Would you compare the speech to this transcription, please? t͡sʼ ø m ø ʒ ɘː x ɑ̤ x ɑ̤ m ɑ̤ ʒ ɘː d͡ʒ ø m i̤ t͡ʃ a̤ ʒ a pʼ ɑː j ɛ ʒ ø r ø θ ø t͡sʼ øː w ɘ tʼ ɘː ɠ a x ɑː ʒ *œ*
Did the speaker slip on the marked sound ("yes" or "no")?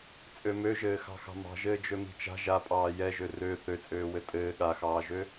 yes